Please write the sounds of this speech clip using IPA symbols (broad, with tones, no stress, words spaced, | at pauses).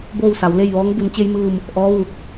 boː˥˨wsa˩˧wle˥˨jʋɔː˧˥ŋ bu˩˧nt͡ɕe˧jmɯː˧˩m | ʔɔː˧˥ʋuː˧˩k̚